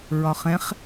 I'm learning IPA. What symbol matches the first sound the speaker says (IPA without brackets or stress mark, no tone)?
ɹ